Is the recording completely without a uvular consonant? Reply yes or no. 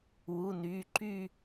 yes